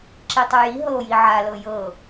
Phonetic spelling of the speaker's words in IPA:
ǁitˤuji ɦɤo̯jiʕalɤ jɤ

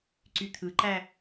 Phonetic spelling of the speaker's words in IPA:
ǀyt̪ʰɯǃæ

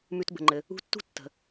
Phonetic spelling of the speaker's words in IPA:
mʉ˨tbə̤˩ŋ͡ǃɘ˩ | ṳ˦tːṳ˥ tːə̤˩

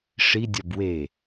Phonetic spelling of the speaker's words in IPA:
ʂidʲɒb we

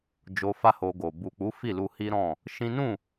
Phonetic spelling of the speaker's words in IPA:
d͡ʒo˧fa˦ho˧ɡo˨ bu˨k͡pu˨˦ fi˦˨lu˧hi˦ɾɔ̃˦˨ | ʃĩ˦ nũ˦˨

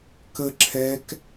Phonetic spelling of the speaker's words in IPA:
kə ǁʰɛk

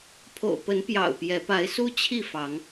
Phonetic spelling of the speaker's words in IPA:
pʰo̰˨˩ʊ̯pə˨˦npjɑ̰˨˩ʊ̯ pjɛ˨˦ pa˨˦ɪ̯su˦ t͡ɕʰi˥˨ fɑ˨˦ŋ

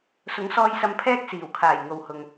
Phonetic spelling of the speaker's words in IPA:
sʊ˨˥ŋsɔː˧jsɐ˧mpʰɛː˥k̚ siː˨˩wkʰaː˨˩j ŋo˨whʊ˨ŋ

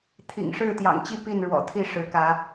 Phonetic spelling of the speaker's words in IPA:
t̪ʰḭ˨˩ŋʂɻ̩˥˨t̪jɑ̰˨˩ŋt͡ɕi˥˨ pi˥˨nɻwɔ̰˨˩t̪ʰi˥˨ ʂɻ̩˨˦kä˨˦

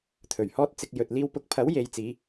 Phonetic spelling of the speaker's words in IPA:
t̪ʰɵ˨˩ɥhɔː˥t̚ t͡sɪ˧k̚ jɵ˧t̚liː˥w pʊ˨˥k̚pʰɐ˨˥w je˨˧jt͡siː˨˧

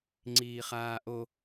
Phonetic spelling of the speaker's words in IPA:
ŋ͡ǀiːχaːʔo

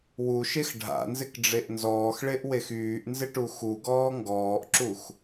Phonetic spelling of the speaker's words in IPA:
wuʃex ɖʱa̰nzɪkɖ͡ʐeʔ nzɔːxɭeʔwex yːʔnzɪʈu xuɡɔː ŋɡɔːʔǁux

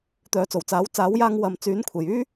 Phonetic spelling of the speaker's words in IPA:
t̪œː˨˥t͡so˨˩wt͡saː˨˥w t͡saː˨˥wjaː˧ŋ wɐ˨mt͡syː˨˥n kʷʰe˨˩jyː˥

